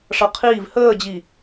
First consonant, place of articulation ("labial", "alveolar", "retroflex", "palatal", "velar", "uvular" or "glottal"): retroflex